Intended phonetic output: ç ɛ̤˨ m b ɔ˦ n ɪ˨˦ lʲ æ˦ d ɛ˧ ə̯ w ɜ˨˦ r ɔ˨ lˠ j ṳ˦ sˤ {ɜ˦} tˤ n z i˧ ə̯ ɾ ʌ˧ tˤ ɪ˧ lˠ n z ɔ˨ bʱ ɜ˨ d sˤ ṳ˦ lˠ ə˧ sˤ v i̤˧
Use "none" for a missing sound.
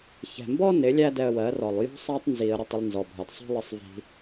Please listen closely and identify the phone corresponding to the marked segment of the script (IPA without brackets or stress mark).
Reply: æ˦